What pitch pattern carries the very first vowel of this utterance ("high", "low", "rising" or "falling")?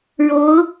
rising